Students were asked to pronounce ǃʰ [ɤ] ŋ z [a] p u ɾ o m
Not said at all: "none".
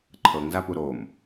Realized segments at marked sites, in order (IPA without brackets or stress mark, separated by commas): ɤ, a